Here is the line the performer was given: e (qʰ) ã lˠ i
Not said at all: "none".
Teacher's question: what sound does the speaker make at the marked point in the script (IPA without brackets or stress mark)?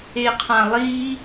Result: qʰ